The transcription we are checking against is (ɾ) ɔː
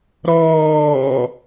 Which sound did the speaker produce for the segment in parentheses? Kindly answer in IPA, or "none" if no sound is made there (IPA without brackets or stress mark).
ɾ